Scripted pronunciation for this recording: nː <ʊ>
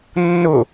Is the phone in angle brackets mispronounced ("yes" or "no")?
no